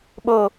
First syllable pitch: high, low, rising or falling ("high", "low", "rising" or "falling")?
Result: high